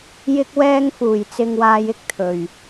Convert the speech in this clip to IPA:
j ɪ˧ k̚ w ɛː˧ ŋ f uː˨˩ j t͡s ɪ˧ ŋ w aː˧ j ɪ˥ k̚ t̪ʰ ɵ˨˩ ɥ

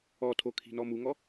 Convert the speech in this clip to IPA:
ɔ tʰ o kʰ i̤ n ɔ m u ŋ ɔ

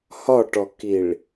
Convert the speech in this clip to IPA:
h ɒ ʈ ɔ k i ɭ

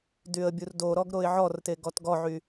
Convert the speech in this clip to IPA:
d y ə̯ bʲ u r d o ɾ ɔ ɡ ɾ o ɪ̯ ʕ ɔ r t e ɡ ɔ t ɡ ɔ ʕ y

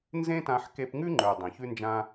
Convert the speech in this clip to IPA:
n z ẽ˦ t ã˧ ħ k e˧ p ŋ ʉ˦ ŋ͡ǃ ə˞˨ dˤ ẽ˨ ç ʉ˦ n d͡ʒ ã˦

